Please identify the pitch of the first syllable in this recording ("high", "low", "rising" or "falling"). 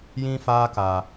high